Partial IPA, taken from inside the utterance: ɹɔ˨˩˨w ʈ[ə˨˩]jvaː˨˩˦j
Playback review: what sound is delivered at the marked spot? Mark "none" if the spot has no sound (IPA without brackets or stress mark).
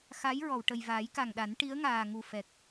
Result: ə˨˩